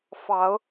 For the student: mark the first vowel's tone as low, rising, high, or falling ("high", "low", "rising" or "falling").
rising